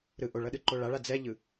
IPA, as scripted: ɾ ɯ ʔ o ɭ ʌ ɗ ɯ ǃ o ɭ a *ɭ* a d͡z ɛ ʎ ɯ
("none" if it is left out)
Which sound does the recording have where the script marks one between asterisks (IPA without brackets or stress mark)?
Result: ɭ